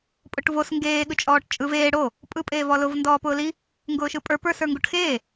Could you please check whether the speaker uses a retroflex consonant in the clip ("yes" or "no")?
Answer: yes